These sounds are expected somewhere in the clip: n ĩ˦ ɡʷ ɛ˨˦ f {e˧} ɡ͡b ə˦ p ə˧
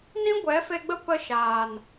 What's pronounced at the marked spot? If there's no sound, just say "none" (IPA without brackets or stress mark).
e˧